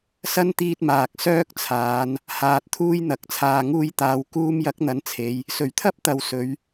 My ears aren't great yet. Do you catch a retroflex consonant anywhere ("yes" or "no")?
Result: no